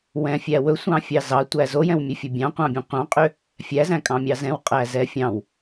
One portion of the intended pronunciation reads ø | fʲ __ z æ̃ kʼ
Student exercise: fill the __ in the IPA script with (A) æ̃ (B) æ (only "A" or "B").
B